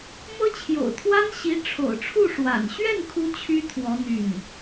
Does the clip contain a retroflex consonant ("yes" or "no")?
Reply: yes